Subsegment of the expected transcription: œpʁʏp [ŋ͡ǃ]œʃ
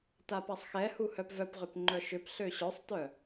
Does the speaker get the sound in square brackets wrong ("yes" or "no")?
no